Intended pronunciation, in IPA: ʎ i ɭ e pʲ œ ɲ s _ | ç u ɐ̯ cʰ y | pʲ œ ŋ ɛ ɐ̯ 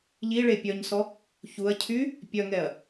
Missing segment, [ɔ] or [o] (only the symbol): ɔ